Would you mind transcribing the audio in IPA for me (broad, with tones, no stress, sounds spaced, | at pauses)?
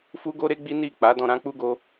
f u˦ ɡ o˦ ɾ e˦ ɡ͡b i˦ n i˦˨ k͡p a˨˦ d ɔ̃˧ ɾ ã˦ k͡p u˦ ɡ o˦